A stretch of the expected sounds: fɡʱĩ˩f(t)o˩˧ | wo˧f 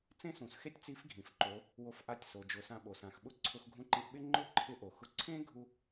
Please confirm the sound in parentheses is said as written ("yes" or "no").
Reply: no